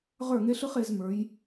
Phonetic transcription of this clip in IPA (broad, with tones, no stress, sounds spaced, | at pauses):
ʁ ə˞˦˨ ŋ e˦ ɬ ɯ˦ χ e˨˦ z m ə˞˨˦ j